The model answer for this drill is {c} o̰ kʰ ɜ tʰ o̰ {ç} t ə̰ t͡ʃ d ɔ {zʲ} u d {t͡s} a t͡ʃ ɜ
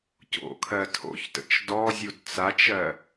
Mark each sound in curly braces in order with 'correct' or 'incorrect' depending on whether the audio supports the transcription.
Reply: correct, correct, correct, correct

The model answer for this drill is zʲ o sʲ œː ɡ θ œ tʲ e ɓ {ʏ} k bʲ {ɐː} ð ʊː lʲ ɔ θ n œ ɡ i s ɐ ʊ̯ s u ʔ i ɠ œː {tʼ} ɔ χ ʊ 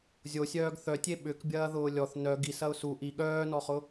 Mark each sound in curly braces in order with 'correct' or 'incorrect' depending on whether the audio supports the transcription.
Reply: correct, correct, incorrect: n

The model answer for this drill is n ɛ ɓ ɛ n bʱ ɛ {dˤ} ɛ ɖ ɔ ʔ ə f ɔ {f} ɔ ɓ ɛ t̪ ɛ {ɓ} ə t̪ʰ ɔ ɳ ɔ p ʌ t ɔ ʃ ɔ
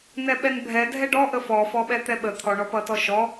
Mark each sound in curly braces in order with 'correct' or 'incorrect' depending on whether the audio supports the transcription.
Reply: incorrect: dʱ, correct, correct

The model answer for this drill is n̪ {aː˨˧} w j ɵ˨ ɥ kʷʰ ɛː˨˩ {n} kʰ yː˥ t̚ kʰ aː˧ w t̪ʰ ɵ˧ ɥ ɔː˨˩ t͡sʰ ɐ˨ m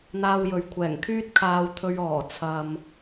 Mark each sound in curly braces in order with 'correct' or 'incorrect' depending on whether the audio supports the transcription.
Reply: incorrect: aː˧, incorrect: ŋ

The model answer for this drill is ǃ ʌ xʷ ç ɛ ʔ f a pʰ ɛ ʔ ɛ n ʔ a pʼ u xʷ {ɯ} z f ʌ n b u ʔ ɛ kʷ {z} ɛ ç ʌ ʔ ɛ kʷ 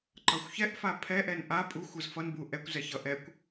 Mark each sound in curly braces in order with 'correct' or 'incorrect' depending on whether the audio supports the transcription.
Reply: correct, correct

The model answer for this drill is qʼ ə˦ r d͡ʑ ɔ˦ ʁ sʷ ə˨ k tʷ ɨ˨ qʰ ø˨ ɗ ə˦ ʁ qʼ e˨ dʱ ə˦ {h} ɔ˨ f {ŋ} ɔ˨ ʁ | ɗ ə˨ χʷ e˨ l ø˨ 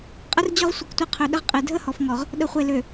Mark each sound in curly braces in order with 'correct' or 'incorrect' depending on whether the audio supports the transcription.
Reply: correct, correct

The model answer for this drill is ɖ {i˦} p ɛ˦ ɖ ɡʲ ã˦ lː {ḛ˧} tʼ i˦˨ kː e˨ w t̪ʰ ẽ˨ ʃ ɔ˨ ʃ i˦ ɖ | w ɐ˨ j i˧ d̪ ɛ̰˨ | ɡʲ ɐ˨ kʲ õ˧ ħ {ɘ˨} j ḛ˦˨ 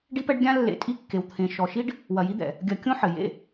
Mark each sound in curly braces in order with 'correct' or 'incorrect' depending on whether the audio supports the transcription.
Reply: correct, correct, correct

